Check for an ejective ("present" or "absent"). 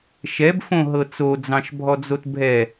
absent